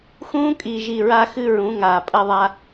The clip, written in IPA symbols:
xũː˦kʼi˨ʒi˨ ɹa˦xɨ˦ɹũ˨˦ ŋaː˨pʼɐ˦ðˤa˦

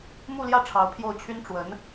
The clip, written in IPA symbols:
mu˥˧ljä˥˩ ʈ͡ʂʰɑ˧˥ʊ̯pʰjo˥˩ʊ̯t͡ɕʰy˥n ʈ͡ʂwə˧˥n

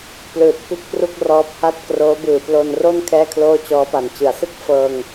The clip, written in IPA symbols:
plɯː˨˩t̚ kɯ˥˩k̚pru˥˩k̚ rɔː˦˥p̚ha˥˩t̚ kroː˦˥bɯː˨˩plo˧nro˥˩n kʰɛː˥˩kʰloː˥˩t͡ɕɔː˦˥pa˨˩n t͡ɕɯ˩˦a̯sɯ˥˩k̚ fɤː˧ŋ

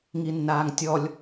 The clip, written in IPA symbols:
ŋinːaːŋtʲɔlʲ

